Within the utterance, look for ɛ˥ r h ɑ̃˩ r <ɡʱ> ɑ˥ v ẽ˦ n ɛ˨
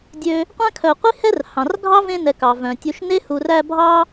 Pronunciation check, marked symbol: correct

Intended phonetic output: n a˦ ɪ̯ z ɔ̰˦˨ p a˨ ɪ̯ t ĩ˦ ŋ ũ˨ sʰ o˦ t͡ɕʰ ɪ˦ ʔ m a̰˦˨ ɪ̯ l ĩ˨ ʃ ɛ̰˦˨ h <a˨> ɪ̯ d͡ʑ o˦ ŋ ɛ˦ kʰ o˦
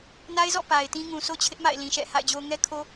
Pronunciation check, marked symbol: incorrect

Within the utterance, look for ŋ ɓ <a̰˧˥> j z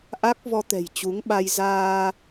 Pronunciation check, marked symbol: incorrect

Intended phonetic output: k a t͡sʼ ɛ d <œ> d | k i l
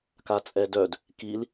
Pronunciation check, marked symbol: correct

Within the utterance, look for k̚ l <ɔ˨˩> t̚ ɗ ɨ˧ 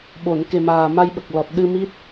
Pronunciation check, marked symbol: correct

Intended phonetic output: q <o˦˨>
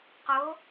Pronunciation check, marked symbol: incorrect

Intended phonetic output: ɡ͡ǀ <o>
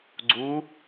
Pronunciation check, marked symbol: incorrect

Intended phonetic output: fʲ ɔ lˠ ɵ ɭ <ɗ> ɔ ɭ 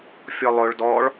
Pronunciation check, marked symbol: incorrect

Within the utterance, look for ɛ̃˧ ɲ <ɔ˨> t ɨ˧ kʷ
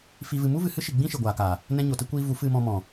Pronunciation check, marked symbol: incorrect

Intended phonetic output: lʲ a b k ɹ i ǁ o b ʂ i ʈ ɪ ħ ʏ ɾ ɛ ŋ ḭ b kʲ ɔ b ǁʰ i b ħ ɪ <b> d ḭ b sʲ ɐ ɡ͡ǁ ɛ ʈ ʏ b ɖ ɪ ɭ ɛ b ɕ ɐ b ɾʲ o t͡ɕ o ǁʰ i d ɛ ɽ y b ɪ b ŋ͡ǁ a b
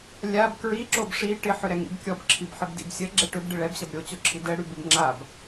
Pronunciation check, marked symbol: correct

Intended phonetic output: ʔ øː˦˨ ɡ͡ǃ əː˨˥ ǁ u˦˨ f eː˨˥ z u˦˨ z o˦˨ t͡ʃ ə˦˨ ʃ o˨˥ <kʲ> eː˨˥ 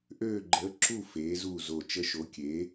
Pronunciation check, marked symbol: correct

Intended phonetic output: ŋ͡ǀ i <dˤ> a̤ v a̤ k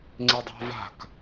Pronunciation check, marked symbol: correct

